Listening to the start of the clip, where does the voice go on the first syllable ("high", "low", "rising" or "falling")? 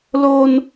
high